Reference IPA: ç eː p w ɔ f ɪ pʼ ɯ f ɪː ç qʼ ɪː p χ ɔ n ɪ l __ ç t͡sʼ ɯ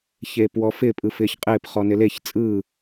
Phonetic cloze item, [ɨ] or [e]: e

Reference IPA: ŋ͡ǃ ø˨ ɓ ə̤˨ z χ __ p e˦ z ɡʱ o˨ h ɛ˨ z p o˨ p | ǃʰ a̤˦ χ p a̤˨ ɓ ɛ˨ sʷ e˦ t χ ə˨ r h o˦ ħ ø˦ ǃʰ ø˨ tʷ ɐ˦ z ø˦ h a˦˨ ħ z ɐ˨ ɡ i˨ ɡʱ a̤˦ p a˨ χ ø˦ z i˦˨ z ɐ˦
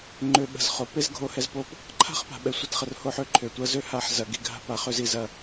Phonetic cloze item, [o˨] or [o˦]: o˨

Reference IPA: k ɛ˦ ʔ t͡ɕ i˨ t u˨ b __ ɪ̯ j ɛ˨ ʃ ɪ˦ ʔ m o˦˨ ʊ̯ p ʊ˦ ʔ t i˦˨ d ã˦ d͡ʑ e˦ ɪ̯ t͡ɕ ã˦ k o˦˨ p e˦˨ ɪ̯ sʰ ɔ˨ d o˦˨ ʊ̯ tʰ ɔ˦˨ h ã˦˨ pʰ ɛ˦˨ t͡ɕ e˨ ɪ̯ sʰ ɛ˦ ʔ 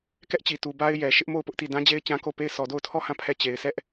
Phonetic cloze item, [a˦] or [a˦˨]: a˦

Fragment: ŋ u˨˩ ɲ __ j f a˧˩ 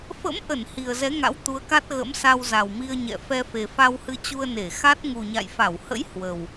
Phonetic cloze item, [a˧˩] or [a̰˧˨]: a̰˧˨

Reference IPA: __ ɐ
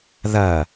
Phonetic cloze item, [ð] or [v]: ð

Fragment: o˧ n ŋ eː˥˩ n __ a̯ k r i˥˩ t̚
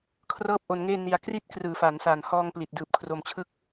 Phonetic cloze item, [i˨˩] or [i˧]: i˧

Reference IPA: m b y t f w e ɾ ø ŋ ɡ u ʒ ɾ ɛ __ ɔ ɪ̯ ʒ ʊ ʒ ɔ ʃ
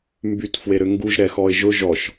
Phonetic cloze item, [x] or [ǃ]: x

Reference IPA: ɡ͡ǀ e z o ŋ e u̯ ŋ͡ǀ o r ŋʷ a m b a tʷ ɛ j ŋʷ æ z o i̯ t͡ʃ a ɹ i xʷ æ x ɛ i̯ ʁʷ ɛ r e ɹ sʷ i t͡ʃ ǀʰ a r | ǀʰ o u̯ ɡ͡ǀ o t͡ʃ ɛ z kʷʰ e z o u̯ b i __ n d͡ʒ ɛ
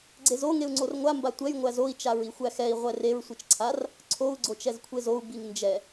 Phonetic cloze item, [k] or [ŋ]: ŋ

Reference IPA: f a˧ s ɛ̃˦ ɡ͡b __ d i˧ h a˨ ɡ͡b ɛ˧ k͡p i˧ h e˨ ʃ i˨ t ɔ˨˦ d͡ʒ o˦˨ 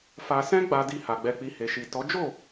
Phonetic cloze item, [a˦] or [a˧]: a˧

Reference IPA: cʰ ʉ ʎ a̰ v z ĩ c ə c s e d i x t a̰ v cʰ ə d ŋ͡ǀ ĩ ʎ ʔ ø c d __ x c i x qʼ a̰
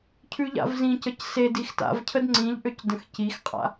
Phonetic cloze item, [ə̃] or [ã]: ə̃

